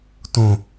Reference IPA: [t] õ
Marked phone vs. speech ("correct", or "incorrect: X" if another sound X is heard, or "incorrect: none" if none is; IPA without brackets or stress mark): correct